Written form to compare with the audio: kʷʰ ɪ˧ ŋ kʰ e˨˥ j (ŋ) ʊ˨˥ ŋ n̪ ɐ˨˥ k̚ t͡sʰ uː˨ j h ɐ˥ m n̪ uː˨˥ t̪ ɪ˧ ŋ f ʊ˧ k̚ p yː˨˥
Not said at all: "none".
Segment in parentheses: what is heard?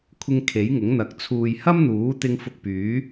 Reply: ŋ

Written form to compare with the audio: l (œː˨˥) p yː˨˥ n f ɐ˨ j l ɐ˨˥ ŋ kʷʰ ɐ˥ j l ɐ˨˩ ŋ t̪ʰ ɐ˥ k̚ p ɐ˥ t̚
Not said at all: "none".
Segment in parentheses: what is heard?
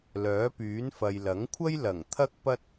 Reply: œː˨˥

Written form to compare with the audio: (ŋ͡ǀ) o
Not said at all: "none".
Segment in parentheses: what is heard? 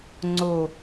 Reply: ŋ͡ǀ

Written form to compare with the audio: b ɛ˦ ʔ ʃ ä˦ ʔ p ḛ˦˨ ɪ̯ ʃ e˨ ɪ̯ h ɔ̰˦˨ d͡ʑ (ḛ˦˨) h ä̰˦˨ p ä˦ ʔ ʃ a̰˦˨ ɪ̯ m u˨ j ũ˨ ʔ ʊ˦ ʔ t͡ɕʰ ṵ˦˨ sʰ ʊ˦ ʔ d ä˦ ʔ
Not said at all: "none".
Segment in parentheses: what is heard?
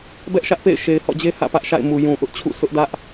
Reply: e˦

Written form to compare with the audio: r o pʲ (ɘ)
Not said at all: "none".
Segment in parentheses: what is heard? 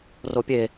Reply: e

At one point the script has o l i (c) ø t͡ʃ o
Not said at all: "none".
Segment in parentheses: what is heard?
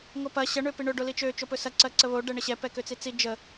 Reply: t͡ʃ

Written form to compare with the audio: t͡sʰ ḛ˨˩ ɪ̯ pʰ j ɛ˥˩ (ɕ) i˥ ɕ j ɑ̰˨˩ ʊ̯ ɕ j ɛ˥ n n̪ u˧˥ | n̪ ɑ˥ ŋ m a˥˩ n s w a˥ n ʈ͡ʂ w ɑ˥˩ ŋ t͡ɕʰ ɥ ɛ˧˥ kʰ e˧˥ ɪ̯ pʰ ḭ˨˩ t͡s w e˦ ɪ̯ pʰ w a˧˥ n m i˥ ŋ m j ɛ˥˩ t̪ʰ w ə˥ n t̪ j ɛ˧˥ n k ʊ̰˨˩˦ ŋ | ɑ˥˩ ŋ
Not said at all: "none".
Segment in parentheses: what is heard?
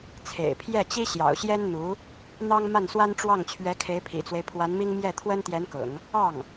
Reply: t͡ɕ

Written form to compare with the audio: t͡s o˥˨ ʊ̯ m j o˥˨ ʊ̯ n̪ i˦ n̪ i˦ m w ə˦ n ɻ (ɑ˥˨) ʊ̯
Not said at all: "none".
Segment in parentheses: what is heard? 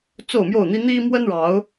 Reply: ɑ˨˦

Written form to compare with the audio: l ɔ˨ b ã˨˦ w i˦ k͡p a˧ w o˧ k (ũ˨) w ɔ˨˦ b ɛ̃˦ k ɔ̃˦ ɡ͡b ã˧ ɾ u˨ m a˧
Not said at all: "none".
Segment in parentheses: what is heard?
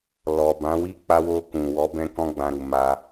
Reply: ũ˨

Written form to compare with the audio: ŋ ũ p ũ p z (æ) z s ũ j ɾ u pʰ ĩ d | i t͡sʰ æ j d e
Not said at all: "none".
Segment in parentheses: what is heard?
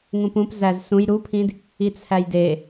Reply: æ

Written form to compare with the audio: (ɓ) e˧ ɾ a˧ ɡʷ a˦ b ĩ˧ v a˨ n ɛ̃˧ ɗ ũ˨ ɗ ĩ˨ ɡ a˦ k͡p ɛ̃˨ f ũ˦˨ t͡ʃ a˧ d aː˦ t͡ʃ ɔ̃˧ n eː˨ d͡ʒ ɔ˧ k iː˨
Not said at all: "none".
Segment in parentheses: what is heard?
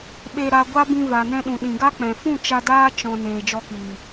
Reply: ɓ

